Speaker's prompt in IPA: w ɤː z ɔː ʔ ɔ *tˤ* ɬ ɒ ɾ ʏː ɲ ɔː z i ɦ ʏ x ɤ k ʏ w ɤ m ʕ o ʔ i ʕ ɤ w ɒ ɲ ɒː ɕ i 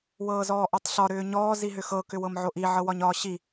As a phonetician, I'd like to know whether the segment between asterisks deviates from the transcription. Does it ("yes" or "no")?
no